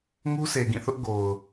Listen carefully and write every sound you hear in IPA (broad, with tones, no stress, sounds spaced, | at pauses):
ŋ u˦ sʰ e˨ ɡ ĩ˦˨ θ ʊ˦ ʔ ɡ o˨ ʊ̯